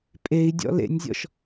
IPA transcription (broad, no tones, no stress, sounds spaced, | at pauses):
pʼ e i̯ dʲ ɔ̰ l ḛ nʲ zʲ ɔ̰ ʃ